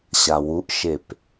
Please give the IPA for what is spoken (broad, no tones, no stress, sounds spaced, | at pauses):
ɕ a w u ʔ ʃ e p